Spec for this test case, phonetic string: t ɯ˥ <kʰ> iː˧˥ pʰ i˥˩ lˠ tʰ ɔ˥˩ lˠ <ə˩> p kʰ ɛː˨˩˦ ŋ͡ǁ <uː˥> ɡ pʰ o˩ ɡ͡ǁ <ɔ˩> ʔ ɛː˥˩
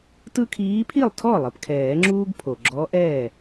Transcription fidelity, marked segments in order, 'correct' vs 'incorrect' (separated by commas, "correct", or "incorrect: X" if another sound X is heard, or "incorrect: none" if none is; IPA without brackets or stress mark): correct, correct, correct, incorrect: ɔ˧˥